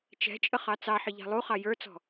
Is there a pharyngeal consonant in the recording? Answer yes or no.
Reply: yes